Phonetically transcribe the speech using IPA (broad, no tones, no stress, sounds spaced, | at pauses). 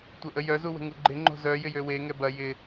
tʷ ɐ ʔ ə j œ z u w ə̤ ŋ u ɡ͡ǃ ɪ ŋ͡ǃ o̤ z œ j ɪ j ø w e ŋ ɛ b ɐ j ɪ